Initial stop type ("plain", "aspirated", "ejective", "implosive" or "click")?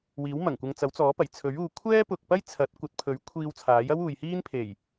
plain